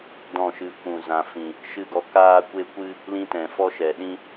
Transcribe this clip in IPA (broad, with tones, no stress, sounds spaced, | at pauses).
d ɔ̃˦˨ ʃ ɨ˧ kʷ ũ˨ z ã˨ f ĩ˨ | ʃ ɨ˦˨ ɡ ɔ˧ k aː˦ kʷ e˦ kʷ ɨ˦ | l ĩ˦ t ɛ̃˨ f ɔ˦ ʃ ɛ˨ ɗ ĩ˦